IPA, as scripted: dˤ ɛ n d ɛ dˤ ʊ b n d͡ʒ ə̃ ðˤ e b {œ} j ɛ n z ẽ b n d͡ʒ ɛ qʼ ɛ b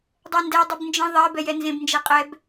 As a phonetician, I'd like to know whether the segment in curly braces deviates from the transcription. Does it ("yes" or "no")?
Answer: yes